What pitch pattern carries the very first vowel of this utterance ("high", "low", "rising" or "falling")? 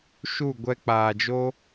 falling